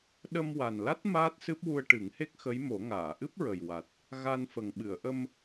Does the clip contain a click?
no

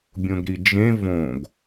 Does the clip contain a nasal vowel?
yes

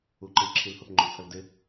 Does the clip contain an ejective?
no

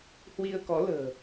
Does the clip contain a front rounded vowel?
no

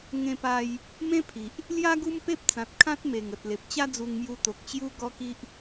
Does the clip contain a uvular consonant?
no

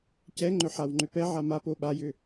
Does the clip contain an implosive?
yes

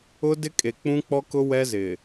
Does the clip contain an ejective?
yes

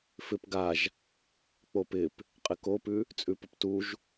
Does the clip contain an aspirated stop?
no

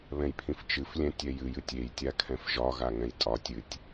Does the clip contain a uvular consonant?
no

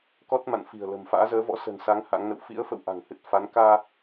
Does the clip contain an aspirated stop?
no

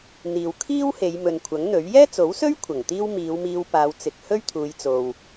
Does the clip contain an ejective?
no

